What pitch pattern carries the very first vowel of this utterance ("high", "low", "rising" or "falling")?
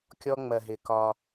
high